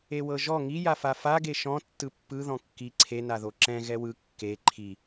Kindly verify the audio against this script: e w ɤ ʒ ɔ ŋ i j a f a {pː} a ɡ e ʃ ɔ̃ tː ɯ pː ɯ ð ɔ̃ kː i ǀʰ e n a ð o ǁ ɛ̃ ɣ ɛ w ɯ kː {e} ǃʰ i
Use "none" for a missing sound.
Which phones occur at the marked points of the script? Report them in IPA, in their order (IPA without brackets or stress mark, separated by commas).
f, e